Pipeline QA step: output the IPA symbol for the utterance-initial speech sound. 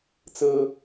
t͡s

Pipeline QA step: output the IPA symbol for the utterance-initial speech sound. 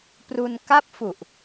p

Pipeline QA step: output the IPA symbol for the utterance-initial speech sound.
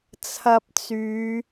t͡sʰ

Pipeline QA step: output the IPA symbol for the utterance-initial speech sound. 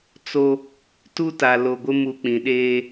t͡s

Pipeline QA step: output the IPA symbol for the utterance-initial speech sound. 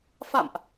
f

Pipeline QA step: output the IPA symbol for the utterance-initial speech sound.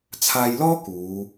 t͡sʰ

